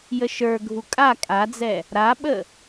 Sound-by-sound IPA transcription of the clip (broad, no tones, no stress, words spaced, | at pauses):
jəʃə˞ɡʱu kʼa kʼad͡zɛ | ɾaɓə